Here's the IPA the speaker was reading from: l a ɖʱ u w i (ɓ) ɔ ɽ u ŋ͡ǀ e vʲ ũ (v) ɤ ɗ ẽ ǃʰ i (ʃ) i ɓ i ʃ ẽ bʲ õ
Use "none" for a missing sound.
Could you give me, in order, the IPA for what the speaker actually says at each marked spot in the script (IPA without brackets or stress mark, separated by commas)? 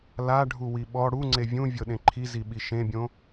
ɓ, vʲ, z